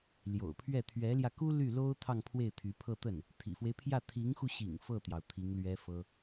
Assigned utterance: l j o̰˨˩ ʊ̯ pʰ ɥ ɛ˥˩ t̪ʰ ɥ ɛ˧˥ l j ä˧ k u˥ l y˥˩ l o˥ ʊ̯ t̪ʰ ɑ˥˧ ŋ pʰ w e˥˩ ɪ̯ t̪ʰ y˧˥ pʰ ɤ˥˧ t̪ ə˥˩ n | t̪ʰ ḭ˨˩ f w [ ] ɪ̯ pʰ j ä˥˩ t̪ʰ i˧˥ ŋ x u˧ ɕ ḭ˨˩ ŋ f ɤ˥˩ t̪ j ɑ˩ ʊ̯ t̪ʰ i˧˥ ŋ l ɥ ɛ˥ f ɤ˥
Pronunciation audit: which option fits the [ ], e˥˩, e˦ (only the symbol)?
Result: e˦